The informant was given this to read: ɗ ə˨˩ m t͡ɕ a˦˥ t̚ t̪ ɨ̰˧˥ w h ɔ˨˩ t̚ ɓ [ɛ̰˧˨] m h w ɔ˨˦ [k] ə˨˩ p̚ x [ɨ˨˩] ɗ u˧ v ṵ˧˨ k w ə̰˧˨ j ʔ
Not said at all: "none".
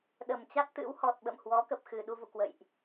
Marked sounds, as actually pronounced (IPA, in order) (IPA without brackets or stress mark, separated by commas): ə̰˧˨, k, ɨ˨˩